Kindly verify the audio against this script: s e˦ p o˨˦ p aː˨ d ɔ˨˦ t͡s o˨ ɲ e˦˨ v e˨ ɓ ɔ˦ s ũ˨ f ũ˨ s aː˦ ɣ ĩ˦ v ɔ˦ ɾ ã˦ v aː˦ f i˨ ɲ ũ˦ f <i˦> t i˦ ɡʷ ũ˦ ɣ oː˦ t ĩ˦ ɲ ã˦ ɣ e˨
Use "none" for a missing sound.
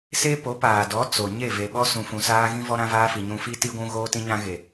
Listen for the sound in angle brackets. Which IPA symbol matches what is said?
i˦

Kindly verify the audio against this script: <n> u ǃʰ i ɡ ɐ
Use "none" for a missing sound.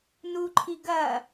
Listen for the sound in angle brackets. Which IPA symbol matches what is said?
n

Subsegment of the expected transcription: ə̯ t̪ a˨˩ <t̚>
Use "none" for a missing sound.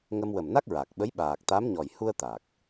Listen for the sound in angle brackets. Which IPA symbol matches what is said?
k̚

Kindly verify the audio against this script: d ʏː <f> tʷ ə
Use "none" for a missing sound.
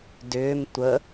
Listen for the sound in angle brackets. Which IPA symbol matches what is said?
m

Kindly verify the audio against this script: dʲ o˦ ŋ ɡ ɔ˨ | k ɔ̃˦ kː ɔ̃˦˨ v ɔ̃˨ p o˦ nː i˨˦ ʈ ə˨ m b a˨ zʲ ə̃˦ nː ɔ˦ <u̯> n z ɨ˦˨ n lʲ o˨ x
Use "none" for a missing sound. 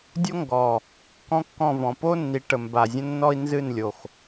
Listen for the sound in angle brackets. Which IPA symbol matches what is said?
i̯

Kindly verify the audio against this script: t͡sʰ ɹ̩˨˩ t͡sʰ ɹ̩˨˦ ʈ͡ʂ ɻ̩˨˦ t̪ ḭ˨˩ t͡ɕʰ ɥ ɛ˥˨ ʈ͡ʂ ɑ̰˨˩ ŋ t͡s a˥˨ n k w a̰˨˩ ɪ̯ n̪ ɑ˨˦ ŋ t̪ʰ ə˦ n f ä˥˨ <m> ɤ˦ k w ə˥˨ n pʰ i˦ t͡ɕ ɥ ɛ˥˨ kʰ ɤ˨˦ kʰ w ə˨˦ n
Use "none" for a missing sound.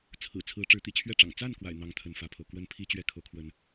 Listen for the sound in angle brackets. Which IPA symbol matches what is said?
pʰ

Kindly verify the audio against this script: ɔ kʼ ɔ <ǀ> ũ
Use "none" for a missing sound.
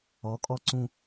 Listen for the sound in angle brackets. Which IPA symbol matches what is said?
ǀ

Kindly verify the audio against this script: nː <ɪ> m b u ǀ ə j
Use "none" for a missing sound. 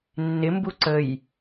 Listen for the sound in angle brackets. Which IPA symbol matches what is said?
ɪ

